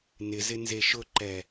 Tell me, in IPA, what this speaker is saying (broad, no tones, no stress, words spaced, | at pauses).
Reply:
nɪzɪ nzeʃʊǃɛ